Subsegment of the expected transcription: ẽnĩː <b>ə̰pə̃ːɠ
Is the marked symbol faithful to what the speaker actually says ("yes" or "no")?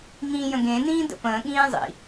no